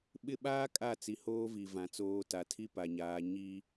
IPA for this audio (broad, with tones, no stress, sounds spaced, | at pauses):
ɓ ɪ˦ ɓ aː˦ kʼ a˦˨ t͡s i˨ h oː˦ v i˨ v ã˨ t͡s oː˦ t a˨ tʰ i˦ p a˨ ɲ aː˨˦ ɲ i˦